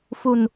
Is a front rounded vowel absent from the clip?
yes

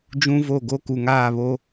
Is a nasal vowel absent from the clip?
no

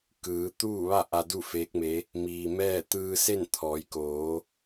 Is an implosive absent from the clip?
yes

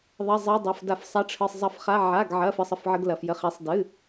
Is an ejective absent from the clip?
yes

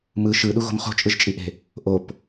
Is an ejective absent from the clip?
no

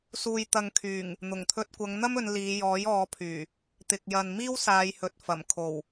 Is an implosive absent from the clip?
yes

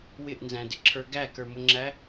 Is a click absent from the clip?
no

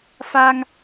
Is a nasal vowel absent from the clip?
yes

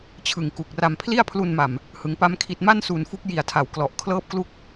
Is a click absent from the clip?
yes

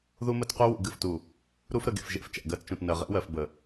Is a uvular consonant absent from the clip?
no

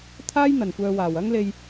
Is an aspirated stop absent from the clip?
no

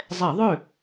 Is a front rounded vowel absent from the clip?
no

